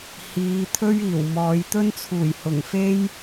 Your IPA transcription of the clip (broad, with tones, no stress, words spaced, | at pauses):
hiː˨˧ t̪ʰɵ˥ɥiː˨˩wmɔː˨˧j t̪ɵ˥nt͡sʰuː˨˩jhʊ˨˩ŋ fe˥j